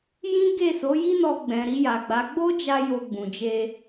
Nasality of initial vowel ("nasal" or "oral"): nasal